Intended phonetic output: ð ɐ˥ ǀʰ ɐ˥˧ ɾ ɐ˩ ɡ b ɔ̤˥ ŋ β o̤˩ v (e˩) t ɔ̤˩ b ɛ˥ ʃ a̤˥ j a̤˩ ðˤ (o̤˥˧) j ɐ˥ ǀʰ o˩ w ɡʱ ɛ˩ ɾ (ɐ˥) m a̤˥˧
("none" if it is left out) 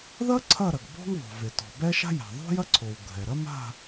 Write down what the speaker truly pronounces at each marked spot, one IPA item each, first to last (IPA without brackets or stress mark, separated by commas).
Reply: e˩, o̤˥, ɐ˥